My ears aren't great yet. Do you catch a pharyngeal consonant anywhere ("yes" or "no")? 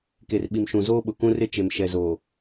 no